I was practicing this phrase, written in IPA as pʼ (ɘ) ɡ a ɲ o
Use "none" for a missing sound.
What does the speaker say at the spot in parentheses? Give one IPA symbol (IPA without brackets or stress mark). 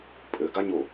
ɘ